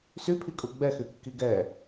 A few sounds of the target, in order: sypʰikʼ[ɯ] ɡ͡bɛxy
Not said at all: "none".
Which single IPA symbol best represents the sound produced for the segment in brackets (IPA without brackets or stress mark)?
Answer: u